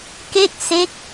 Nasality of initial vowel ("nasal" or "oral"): oral